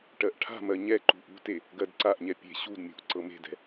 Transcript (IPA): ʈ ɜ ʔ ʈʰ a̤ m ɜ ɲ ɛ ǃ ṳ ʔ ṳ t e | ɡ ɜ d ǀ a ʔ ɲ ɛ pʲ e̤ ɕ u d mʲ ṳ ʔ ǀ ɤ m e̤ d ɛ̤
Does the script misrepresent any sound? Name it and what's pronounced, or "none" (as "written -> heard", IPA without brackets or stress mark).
none